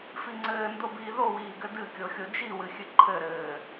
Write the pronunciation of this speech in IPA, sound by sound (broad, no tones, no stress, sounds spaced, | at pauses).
f i ŋ͡ǀ ɘː n d o b iː ð o w iː ɡ ɘ d ɨ kʲ o xʲ o d͡ʒ i w ɨ xʲ ɨ ǃʰ ɘ ɾ ɘː